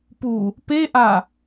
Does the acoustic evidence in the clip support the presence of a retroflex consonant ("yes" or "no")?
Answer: no